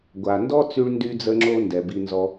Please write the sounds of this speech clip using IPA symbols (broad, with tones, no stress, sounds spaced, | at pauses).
ɡʷ a˩ n d ɔ˥ t͡s y˥ ɭ n d y˥ d͡z ə˥ ŋ͡ǁ o˥ n d ɛ˩ b i˧ n z ɔ˧